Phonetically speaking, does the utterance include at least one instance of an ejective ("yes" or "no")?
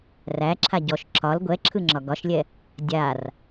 no